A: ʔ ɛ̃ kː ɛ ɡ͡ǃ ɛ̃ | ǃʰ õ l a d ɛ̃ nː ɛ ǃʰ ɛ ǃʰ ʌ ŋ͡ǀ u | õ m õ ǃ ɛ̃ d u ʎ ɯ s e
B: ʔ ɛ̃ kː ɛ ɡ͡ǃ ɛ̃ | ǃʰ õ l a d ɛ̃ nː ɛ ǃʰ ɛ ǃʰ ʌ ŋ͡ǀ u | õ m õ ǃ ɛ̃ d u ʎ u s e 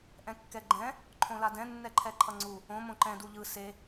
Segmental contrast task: A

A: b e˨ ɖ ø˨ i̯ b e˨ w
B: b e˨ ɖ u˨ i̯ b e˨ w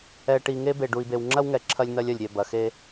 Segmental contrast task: B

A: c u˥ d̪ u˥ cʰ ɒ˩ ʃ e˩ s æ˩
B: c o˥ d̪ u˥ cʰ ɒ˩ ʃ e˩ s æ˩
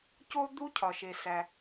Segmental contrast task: B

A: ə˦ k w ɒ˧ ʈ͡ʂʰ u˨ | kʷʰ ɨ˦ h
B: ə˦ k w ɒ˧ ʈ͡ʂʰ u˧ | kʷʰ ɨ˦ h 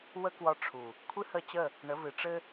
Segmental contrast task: A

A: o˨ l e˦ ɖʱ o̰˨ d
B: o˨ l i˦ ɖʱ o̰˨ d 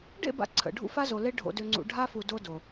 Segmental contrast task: A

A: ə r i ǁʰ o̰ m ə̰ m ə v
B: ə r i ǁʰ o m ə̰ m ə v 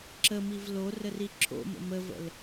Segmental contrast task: A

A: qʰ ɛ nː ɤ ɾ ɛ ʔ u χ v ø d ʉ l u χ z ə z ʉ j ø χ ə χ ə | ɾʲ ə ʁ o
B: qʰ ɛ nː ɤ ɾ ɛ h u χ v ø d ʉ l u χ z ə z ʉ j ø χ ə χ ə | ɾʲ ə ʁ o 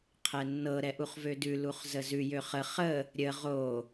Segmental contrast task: A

